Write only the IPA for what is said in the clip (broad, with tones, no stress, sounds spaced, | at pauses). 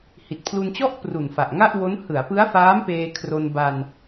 h i˨˩ t̚ pʰ l u˧ n t͡ɕ ɔ˥˩ ʔ p r u˨˩ n f a˨˩ ʔ ŋ a˥˩ ʔ w o˦˥ n h ɯ˩˦ a̯ p ɯ˦˥ a̯ f aː˦˥ m p eː˧ kʰ r o˧ n b a˧ n